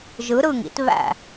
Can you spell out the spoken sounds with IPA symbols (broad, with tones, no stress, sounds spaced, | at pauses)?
ʒ ɯ˨˥ ɾ ɯ˧˩ ŋ ḭ˦ t β æ̰˧˩